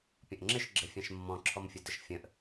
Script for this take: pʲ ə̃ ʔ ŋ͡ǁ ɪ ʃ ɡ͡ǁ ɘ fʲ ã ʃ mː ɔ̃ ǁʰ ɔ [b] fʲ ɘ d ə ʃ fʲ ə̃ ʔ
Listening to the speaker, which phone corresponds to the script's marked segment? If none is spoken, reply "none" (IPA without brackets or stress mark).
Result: m